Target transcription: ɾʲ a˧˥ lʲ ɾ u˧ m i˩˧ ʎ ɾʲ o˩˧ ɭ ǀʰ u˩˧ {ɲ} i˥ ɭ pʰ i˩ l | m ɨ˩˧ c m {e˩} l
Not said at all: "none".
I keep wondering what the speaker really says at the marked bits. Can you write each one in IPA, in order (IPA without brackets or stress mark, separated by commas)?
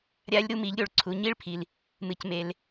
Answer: ɲ, e˩